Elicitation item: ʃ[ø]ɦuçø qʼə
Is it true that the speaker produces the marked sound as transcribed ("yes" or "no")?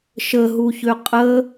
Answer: no